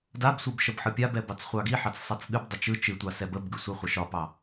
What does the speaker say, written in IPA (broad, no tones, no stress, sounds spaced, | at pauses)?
d a b sʷ ɨ b ʃ ə b ħ ɯ pʲ a b ɛ b ɑ t͡s χʷ ɑ ɡ i ħ ɑ t͡s sˤ a t͡s ɠ ɨ b dˤ ə t͡ʃ ɯ t͡ʃ ɨ tʷ ɑ s ɛ b ə b ɡ ɯ sʷ ɨ χʷ ə ʃ ɒ p ɑ